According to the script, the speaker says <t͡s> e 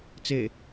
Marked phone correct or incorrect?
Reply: correct